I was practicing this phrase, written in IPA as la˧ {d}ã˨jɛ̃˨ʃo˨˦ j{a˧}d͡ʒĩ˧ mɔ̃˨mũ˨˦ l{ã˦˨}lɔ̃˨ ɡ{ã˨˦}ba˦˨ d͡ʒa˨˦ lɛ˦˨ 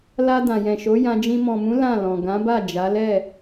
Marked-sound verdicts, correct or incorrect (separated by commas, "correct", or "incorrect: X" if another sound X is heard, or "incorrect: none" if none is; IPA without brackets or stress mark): correct, incorrect: ã˧, correct, correct